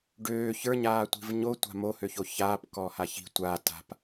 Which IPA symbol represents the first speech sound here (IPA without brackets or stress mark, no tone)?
ɖ